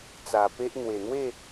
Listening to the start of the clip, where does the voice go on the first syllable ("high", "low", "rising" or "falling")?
low